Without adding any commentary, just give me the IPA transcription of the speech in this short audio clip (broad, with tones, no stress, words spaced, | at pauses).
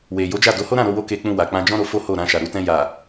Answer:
we˨ jo˨˦d͡ʒa˦˨do˨˦ ho˦ɾã˦˨ ɾo˧wo˧ ke˧k͡pũ˧ wa˨ k͡pã˧d͡ʒɔ̃˦ɾo˧ fo˦ho˦˨ ɾã˧ʃa˨ɾu˨˦ tɛ̃˧ja˨